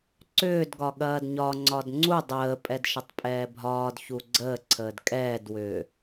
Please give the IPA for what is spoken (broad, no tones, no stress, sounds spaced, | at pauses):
ǀ ʏː d ɡ ɒ ɠ ɐː d ɲ ɒ ŋ͡ǀ ɒ d ŋ͡ǀ u dˤ əː pʼ ɛ d ʃ ə tˤ pʼ ɛː bʱ ɒː d ç u ɡ͡ǀ əː ǀʰ əː d kʼ ɛː d w ʏː